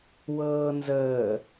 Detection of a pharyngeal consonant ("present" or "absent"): absent